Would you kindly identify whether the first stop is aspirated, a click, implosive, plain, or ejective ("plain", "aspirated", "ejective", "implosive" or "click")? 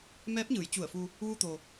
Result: plain